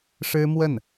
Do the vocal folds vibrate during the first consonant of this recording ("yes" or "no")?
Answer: no